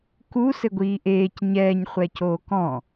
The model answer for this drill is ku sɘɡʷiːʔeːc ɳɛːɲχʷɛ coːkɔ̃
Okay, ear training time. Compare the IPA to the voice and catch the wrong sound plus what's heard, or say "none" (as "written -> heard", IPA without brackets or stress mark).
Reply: ɳ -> ɲ